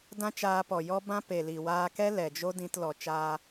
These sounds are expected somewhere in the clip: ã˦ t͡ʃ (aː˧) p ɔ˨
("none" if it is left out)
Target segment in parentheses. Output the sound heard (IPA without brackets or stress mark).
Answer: aː˧